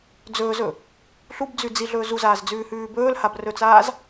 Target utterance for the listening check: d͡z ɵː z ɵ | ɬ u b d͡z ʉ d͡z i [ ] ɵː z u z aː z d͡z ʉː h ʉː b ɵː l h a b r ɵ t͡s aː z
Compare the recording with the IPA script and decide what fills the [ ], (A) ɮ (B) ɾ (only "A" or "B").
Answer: A